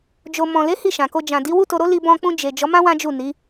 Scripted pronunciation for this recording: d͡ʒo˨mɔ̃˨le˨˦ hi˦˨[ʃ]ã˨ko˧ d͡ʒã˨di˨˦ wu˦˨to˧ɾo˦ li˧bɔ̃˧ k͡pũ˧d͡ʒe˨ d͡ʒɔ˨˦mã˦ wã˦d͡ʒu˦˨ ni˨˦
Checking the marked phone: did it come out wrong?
no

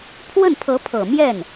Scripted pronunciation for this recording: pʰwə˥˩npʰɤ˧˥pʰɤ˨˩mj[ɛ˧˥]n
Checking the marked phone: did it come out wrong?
yes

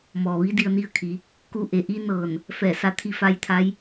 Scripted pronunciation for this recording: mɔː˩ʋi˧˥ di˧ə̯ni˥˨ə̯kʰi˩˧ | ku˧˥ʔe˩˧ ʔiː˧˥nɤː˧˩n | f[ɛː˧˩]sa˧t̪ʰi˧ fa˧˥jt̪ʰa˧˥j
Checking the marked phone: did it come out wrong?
no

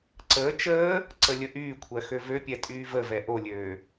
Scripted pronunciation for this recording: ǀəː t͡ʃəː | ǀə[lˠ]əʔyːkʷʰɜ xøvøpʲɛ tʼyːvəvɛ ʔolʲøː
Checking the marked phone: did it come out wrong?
yes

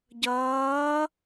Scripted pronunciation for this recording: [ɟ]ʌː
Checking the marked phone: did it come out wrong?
no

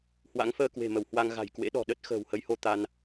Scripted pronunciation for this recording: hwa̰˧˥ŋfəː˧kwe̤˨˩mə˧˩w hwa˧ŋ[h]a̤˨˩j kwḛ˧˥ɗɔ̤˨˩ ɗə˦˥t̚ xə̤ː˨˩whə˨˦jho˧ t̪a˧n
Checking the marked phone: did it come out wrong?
yes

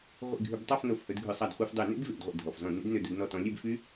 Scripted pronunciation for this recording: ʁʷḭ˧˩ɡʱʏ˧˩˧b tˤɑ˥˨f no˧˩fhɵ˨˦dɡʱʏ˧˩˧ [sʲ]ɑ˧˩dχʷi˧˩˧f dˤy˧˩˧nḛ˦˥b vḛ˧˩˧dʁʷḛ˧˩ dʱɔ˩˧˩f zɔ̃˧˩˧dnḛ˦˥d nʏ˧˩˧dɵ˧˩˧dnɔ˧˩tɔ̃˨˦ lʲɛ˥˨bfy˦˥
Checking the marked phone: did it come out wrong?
yes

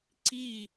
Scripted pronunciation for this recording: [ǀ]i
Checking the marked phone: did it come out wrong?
no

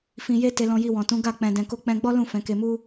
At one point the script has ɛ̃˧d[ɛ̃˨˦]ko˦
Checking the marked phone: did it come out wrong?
yes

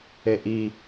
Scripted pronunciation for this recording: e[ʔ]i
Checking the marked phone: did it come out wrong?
no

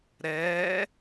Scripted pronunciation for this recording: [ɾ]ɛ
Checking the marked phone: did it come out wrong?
no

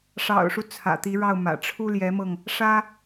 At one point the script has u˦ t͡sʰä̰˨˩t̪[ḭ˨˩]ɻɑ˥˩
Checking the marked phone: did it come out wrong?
yes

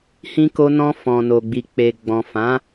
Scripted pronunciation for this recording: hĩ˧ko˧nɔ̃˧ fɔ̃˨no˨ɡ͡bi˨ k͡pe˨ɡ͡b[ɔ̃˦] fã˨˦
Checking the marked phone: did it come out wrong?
yes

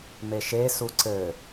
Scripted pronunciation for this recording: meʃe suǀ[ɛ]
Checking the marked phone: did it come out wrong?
yes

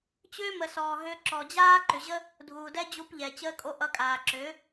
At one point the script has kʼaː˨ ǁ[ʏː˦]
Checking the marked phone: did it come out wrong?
yes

